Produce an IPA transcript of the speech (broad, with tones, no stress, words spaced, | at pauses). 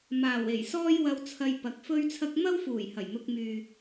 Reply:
maː˨˩we˨˩j sɔː˥jwɐ˧wt͡sʰɐ˧j pɐ˨k̚fɵ˥ɥt͡sʰɐ˥k̚ mɐ˥wfuː˨˩j hɐ˨˩jn̪ʊ˧k̚myː˨